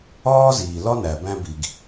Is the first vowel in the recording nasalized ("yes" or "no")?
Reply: no